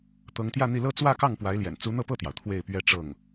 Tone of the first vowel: rising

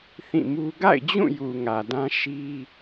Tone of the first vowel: falling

